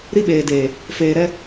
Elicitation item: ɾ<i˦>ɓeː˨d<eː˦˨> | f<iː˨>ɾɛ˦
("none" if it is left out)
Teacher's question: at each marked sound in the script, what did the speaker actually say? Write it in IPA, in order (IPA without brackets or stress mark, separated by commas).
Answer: i˦, eː˨, eː˨